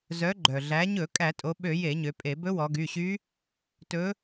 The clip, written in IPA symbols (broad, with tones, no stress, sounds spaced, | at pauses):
z œ˩˧ ɡ͡ǃ œ˩ ɮ æ˩˧ ɲ ɵ˧˩˧ kʼ æ˧˩˧ tʼ o˩˧ ɓ ø˧˩˧ j e˧˩˧ ɲ ø˩˧ pʼ e˧˩˧ b ɵ˧˥ w ɔ˩˧ ɡ y˩˧˩ ɕ y˧˥ | t ɵ˧˥